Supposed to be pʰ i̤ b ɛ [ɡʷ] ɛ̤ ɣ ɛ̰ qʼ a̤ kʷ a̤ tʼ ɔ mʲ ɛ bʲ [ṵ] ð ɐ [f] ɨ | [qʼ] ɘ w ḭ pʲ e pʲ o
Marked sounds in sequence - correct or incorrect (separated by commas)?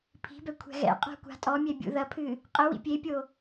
incorrect, correct, incorrect, correct